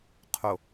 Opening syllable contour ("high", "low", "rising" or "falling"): low